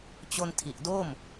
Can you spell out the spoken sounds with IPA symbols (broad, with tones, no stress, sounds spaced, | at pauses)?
t͡ɕ o˧ n tʰ i˨˩ ʔ d o˥˩ m